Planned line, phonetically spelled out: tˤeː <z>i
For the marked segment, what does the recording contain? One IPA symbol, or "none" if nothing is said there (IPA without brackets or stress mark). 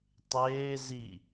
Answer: z